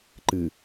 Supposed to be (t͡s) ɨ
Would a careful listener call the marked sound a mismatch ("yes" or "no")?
yes